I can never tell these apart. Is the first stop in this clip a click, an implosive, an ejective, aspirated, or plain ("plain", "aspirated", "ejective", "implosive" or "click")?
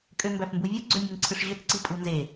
ejective